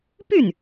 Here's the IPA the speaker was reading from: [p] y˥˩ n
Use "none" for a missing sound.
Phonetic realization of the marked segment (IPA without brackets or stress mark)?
p